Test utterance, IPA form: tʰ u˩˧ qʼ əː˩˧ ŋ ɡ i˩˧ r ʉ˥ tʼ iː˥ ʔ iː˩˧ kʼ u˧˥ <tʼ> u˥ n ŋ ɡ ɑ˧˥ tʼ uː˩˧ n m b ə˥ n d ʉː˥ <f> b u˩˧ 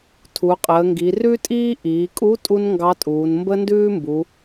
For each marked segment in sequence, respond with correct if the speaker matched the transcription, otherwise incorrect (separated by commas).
correct, incorrect